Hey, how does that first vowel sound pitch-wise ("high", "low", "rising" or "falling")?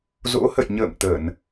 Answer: rising